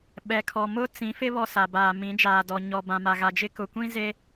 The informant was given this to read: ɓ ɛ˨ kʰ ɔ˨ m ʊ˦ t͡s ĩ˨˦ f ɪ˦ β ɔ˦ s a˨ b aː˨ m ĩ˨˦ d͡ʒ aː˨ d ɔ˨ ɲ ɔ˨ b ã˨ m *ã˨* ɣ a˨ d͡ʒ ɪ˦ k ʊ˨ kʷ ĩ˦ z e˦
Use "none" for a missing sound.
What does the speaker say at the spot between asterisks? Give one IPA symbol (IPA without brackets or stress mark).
a˨